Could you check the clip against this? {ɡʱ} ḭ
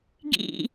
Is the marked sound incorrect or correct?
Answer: incorrect